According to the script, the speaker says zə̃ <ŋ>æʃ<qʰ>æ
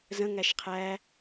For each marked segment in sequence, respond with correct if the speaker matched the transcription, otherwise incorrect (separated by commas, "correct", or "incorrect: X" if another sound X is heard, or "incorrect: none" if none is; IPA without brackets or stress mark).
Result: correct, correct